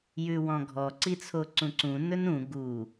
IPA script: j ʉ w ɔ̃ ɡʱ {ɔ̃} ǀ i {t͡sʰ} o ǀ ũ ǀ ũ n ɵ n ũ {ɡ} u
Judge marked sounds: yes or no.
no, yes, yes

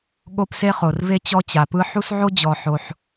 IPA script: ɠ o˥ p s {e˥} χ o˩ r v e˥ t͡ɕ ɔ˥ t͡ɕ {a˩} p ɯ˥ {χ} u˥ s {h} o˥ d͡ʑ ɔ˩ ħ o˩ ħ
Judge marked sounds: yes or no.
yes, yes, no, no

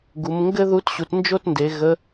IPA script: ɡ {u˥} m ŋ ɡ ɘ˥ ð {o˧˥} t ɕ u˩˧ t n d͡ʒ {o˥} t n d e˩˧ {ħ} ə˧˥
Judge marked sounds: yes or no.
no, no, yes, no

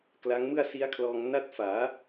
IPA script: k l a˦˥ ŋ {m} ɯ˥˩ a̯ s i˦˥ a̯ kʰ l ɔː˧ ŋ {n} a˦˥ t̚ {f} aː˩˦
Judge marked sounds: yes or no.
yes, yes, yes

